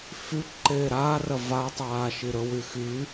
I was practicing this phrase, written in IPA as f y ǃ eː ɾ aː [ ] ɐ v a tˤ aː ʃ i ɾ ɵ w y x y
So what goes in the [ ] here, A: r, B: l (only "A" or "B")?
A